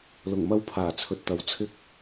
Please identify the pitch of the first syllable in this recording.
low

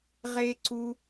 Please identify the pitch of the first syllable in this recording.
high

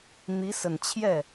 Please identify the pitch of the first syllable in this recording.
rising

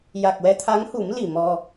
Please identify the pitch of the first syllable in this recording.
low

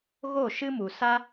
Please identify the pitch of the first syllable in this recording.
falling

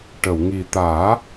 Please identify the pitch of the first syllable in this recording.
low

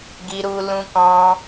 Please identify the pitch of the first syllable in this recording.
high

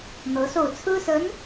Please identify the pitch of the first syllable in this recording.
rising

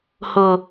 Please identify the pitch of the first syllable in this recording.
low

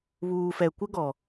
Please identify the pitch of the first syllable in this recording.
low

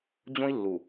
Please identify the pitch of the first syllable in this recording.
high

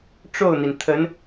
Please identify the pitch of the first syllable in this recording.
falling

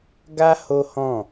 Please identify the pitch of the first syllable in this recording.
high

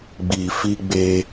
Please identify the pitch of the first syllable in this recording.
low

